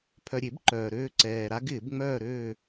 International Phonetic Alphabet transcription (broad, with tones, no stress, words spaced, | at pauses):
pʰœ˨ɾʲe˨˩˦b ǃœː˨ɾøː˥˧ǀɛː˨ ɾa˦˥ɡɪː˨˩˦b ŋ͡mœː˥˧ɾøː˥˧